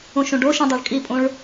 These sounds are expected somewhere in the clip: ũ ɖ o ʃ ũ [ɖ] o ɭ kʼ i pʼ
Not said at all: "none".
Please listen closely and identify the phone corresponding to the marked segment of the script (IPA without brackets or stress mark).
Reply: dˤ